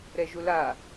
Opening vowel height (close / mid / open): mid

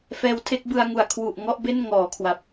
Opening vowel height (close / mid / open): mid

